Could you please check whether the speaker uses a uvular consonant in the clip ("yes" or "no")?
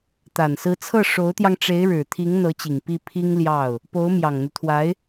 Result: no